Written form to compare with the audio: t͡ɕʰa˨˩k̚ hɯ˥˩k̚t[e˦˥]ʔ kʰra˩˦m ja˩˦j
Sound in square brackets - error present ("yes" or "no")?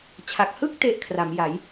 yes